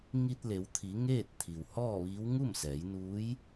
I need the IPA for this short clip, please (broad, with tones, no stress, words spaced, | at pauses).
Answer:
ŋi˧t̚le˩˧wt̪ʰi˩˧ ŋeː˥˨t̚t̪ʰi˩whɔː˥˨ʋiː˧˥w ŋu˥˨msɛː˩˧jnuː˧˥j